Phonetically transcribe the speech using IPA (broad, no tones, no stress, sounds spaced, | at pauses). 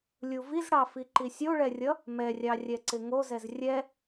lʲ u v i z ɽ ɑ f i ǃ i sʲ o ɭ ɛ rʲ ʌ | m ɛ rʲ ɑ rʲ ɛ ǀ ɪ ŋ o z ɛ z rʲ ɛ